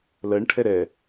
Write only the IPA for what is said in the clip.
lɜɳʈʰɛ ɾɛ

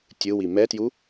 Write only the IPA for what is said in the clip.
tʲɯwi mɛtju

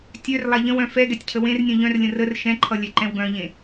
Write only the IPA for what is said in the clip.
tʲœr lˠaʎə̃wœ̃ fɛ ɡɛtʲcʰəwẽrnʲœ̃ ʎœ̃rlʲə̃ rər ʃɛ̃ǃʰʌ lʲɛǃɛ̃wɡœ̃ʎẽ

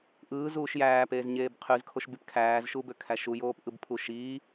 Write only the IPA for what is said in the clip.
ʔɯːzuːʃ jæːpeːzɲeːb qʰyzkʰoʃbyp kʰæːzʃubøkʰæ ʃujoːpʔɯbpʰu ʃiː

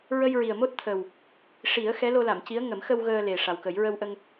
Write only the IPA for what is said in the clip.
ɹə˧jɹi˨˩ə̯mo˦˥t̚t̪ʰə˨˩w | ʂi˨˩˦ə̯ xɛ˧˥lo˧la˨˩˨mci˧˥ə̯ ŋə˨˩˦mxə˧w ɣəː˧le˨˩ ʂa˨˩wkə˨˩˦j ɹə˧wʔə˧ŋ

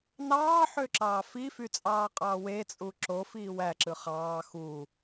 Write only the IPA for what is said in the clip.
nɑːħøǁɑː fifyt͡sʼɑːqʼɑː wet͡sʼu ǁofiː wæǁɯ χɑː xu

